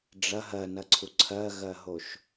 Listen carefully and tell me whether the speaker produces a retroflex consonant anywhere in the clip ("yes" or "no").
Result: yes